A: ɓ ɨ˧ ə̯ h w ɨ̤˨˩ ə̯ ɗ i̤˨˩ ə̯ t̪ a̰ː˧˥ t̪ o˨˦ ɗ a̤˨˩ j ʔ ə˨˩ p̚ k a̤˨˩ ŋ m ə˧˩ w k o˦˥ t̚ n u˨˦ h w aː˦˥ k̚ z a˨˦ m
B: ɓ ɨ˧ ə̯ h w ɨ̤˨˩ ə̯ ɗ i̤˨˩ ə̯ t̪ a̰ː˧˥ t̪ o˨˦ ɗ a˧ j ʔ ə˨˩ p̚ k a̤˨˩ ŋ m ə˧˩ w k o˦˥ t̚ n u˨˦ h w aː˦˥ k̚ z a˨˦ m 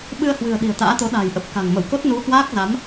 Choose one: A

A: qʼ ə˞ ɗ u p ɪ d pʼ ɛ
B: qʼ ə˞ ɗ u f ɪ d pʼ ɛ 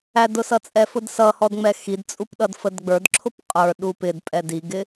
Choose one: A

